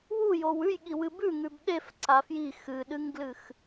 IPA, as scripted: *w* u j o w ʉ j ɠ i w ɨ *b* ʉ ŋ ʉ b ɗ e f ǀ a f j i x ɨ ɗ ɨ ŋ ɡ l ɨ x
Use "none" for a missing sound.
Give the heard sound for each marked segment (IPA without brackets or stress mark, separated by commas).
w, b